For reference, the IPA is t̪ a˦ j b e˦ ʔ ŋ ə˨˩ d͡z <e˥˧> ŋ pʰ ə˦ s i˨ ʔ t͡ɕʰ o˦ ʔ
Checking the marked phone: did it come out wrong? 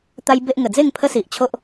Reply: no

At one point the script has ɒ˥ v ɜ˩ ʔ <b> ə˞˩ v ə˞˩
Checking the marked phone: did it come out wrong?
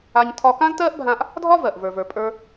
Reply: yes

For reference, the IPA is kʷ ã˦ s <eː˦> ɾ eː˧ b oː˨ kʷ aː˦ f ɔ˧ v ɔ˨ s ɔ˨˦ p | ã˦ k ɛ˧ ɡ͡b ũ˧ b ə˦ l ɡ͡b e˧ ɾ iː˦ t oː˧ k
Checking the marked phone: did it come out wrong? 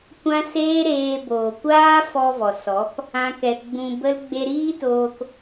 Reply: no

